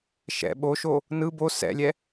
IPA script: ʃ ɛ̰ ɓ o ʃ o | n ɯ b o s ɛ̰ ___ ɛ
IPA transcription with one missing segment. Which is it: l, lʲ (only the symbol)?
lʲ